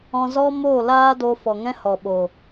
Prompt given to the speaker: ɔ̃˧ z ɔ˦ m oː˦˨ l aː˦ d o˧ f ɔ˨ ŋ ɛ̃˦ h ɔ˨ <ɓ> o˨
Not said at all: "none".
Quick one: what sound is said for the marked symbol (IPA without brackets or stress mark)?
ɓ